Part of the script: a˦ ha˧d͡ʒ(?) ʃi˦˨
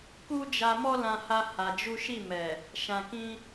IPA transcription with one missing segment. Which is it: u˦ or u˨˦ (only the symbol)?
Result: u˦